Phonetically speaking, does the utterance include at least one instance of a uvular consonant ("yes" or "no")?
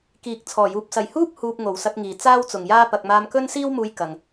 no